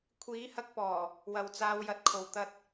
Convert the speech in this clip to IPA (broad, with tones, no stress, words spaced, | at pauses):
kʷʰiː˨˥hɐ˧k̚pɔː˨˩ | wɐ˨wt͡saː˧wjɐ˧t̚kʰo˨w t̪ɐ˧t̚